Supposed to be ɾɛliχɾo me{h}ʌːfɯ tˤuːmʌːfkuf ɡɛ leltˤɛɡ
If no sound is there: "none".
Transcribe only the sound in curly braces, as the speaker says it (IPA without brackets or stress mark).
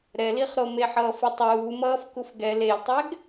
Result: ħ